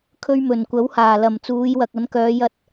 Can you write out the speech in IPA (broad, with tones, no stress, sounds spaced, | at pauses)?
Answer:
kʰ ɵ˧ ɥ m ɵ˨˩ n kʷ ɐ˨˥ w h aː˨˩ l ɐ˨˩ m t͡s uː˨˧ j w ɐ˨ k̚ ɐ˨˥ n k œː˨˧ j ɐ˧ t̚